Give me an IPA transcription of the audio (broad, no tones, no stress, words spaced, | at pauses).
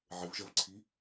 ʕɘvʒɐvǀʰi